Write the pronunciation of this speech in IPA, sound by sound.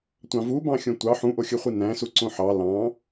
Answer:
tʷ ɑ̃ v u b ɑ̃ xʲ õ tʷ ɑ ħ ũ ʔ o xʲ ɯ χʷ i n æ̃ s u ǀ õ ħ ɑ l ɑ̃

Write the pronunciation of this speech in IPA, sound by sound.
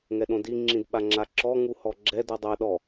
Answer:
ŋ ɛ ɗ õ d i ŋ͡ǁ ĩ d ɓ a ŋ͡ǁ a ǁ ɔ ŋ u h ɔ ɡ͡ǁ ɛ d u dˤ a ɗ ɔ

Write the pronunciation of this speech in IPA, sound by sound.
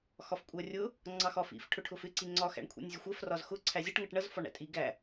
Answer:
x ɒ f kʷʼ ɜ rʲ ʊ | ŋ͡ǀ ɑ x ɒ f ḭ f ʈʰ ʊ ʈʰ ʊ f ɪ ǀ i ŋ͡ǀ ɒ x æ̰ ɳ kʷʰ ḭ nʲ zʲ ʊ xʷ ɜ f r ɒ z x ʊ ǀʰ æ zʲ ʌ ʈ ŋ ʌ ʈ ɳ ʌ z f ɒ ɳ æ̰ tʼ i ɡ æ

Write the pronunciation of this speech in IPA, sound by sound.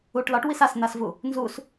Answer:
u ʈ l ɒ ʈ w i s a s n̪ a s v u | n z u s

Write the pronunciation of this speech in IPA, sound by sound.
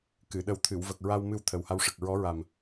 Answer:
k ɨ˨˩˨ ɗ ə˨˩ w t̪ʰ ɨ˨˩˨ w v ə˨˩ k̚ ɹ a˧ w m ɨ˧ w t̪ʰ ə˨˩ w h a˧ w ʂ ə˨˩ k̚ ɹ ɔ˧˥ ɹ a˨˩ m

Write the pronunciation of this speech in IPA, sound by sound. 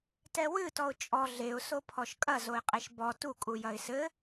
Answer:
t ɛ w ɨ t ɔ ʊ̯ t͡ʃʼ ɔ ɮ e ʊ̯ s o pʰ ɔ ʃ kʼ ɐ z o ɪ̯ qʼ e ʃ b ɔ t u kʼ u j ɐ ɪ̯ s ɘ

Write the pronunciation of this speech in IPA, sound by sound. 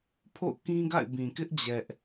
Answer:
pʰ o̰˦˨ ʊ̯ k ĩ˦ ɡ a̰˦˨ ɪ̯ b ĩ˨ k ɪ˦ ʔ d͡ʑ ɛ˦ ʔ

